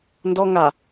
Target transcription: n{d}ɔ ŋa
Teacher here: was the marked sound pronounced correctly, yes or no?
yes